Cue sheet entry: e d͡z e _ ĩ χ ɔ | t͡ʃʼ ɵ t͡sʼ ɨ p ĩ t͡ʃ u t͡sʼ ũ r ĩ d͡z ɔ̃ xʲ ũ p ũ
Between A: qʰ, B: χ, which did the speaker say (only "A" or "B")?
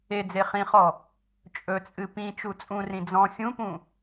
B